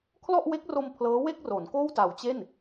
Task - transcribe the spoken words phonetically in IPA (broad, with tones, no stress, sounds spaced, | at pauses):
kʰ l ɔ˥˩ ʔ w e˦˥ k̚ r o˧ m pʰ l ɤː˦˥ w e˥˩ k̚ r o˩˦ n k oː˥˩ w t a˨˩ w t͡ɕ e˥˩ n